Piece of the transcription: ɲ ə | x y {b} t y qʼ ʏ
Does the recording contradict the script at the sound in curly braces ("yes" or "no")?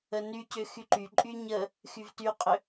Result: yes